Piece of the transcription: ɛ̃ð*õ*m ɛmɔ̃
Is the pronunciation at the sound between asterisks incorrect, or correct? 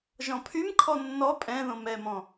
correct